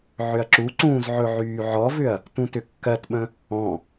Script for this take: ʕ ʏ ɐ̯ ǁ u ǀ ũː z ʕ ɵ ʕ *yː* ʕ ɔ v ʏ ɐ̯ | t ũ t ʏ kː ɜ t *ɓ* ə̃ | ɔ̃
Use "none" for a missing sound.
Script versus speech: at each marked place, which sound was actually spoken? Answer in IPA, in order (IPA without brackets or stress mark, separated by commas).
yː, ɓ